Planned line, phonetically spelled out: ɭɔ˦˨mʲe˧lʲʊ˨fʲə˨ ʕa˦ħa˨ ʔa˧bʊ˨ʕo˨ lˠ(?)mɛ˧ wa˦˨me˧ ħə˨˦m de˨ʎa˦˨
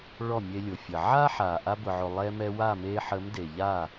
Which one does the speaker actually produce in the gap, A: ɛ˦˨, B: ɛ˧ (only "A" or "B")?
B